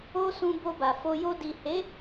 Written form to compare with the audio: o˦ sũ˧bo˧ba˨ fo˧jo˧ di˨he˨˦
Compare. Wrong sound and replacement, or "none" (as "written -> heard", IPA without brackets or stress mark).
none